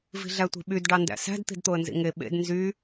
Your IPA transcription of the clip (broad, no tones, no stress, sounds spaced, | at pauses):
v i̤ ɮ æ tʷ i̤ ɓ y d ɖ ɑ n d æ̰ s æ̤ d t̪ i̤ d t̪ o ə̯ n z ḭ ŋ e ɓ ḛ d n z y